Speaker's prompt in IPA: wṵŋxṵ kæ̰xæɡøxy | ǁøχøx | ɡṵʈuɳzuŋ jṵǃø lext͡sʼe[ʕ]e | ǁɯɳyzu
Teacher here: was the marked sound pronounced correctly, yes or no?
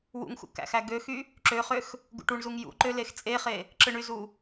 no